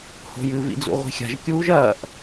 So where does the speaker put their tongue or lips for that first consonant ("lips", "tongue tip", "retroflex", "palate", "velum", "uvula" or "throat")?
throat